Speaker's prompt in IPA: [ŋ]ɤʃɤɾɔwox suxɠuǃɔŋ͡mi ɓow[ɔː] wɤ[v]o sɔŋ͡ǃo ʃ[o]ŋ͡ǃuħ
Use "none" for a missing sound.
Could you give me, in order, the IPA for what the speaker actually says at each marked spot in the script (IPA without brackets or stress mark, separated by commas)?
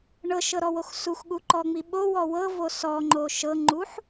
ɳ, ɔ, v, ɤ